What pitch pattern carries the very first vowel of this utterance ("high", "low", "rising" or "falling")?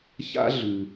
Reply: high